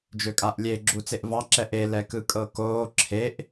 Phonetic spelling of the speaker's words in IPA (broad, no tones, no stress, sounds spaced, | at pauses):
d͡ʒ ø kʼ a ʔ lʲ e ɡ͡ǁ u t͡s e ʔ v ɑ ǁ ɛ ʔ e l ɛ k ɯ kʼ ɤ k oː ǁʰ e ʔ